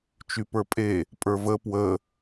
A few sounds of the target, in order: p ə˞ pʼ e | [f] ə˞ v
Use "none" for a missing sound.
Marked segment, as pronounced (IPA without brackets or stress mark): pʼ